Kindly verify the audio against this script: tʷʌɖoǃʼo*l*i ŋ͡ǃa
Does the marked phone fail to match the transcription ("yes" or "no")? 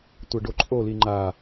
no